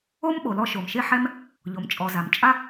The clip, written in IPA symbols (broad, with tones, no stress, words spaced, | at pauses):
o˥mɓo˩lɔ˧ ʃo˩mʃe˥ħɛ˥m | ʎo˩mt͡ʃʼɔ˩za˩m t͡ʃʼa˥